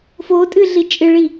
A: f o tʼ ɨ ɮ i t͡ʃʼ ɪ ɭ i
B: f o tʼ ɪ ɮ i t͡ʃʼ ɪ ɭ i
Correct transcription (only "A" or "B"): A